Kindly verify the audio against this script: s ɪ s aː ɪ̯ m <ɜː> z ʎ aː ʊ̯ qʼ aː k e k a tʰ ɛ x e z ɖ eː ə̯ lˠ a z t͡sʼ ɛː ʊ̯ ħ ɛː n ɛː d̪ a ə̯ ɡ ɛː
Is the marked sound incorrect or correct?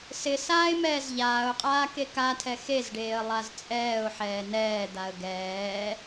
incorrect